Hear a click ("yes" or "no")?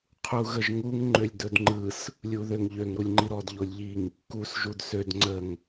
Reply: yes